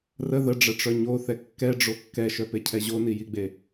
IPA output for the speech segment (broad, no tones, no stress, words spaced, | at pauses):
rə ðəɖ͡ʐəʈ͡ʂœ ɲoθɛ kːɛɖ͡ʐo kːɛʃœpecʰɛ ʑonijiɡ͡be